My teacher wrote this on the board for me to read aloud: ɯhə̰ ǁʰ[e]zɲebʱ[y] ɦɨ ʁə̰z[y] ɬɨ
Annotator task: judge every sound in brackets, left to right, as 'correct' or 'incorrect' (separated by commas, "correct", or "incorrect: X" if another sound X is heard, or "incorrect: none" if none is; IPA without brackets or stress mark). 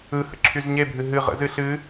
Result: incorrect: y, incorrect: ɨ, incorrect: ɨ